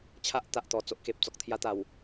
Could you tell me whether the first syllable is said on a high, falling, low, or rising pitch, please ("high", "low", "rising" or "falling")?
high